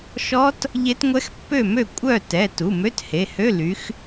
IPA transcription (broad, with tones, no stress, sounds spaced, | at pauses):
ʃ ɔ˦˥ t | ʎ e˦˥ t ŋʷ ɛ˦˥ x pː ø˥˨ m ø˥˨ kʷʼ œ˥˨ t ɛ˩˧˩ t u˩˧˩ m ø˧˥˧ t h e˩˧˩ h ø˧˥˧ l y˨˦ x